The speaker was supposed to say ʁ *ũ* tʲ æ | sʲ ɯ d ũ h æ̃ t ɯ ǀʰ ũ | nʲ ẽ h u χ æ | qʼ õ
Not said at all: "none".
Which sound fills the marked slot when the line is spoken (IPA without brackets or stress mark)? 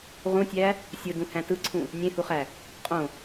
ũ